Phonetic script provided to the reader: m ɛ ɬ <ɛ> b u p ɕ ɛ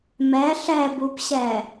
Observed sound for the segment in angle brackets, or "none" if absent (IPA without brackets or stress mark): ɛ